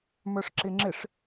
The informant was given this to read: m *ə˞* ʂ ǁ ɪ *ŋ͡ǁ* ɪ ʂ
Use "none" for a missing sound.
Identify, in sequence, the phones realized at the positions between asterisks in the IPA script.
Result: ə˞, ŋ͡ǁ

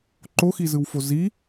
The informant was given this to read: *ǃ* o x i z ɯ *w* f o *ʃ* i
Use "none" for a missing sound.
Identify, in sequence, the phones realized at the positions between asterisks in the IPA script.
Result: ǃ, w, z

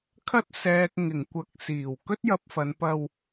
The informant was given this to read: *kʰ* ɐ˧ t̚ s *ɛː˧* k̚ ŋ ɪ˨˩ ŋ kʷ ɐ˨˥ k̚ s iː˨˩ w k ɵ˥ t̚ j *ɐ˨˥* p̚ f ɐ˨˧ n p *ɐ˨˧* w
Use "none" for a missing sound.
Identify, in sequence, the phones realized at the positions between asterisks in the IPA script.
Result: kʰ, ɛː˨, ɐ˧, ɐ˧

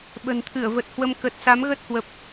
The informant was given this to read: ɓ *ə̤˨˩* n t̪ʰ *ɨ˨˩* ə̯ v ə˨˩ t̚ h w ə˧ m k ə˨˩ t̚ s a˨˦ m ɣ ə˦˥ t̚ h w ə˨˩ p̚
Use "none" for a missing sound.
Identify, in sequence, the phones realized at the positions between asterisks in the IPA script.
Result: ə̤˨˩, ɨ˧˩

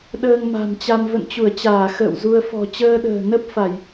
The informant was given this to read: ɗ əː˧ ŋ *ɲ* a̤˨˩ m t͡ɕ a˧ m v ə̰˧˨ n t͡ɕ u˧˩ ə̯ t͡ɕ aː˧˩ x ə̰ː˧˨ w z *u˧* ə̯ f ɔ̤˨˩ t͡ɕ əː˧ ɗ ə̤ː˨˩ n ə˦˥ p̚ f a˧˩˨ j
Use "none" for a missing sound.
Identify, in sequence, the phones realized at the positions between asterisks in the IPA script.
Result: m, u˧

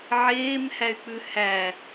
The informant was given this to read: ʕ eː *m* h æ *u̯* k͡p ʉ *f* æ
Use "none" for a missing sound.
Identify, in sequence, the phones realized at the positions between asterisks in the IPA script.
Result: m, y̯, h

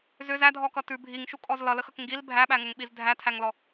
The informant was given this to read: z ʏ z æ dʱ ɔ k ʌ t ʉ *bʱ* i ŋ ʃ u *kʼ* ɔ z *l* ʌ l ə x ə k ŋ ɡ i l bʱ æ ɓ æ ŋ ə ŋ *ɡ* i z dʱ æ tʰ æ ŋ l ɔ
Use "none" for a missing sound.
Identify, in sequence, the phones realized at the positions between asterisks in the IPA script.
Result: bʱ, kʼ, l, ɓ

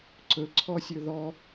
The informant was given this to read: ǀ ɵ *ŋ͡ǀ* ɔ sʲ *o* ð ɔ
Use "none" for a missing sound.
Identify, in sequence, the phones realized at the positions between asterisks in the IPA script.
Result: ǀʰ, ɵ

